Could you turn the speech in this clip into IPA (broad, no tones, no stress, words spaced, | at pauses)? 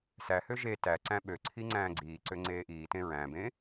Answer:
sæhø ʒe tæǀæ̃ ɓøǀʰi ŋ͡ǀæ̃ːɡ͡ǀiːǀø ŋ͡ǀeːʔiːtẽ ɹæ̃bẽ